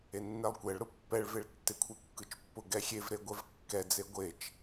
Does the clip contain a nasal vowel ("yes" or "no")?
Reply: no